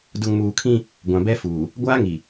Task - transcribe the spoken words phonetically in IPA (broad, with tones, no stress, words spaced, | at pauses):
dʊ˨ŋmuː˨kʰĩ˦ | ɡʷã˨bɛ˦ fuː˨ | ɡʷaː˦ŋi˨